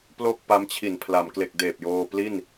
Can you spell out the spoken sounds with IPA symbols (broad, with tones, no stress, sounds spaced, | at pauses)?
p l o˥˩ k̚ p a˦˥ m t͡ɕʰ i˨˩ n pʰ l a˩˦ m k l e˨˩ k̚ d eː˨˩ p̚ j oː˧ p l i˥˩ n